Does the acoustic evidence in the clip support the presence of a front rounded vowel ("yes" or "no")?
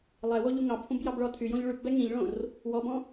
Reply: yes